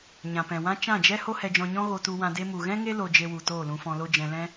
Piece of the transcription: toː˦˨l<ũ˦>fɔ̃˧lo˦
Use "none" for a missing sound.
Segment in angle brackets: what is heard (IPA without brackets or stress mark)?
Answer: ũ˧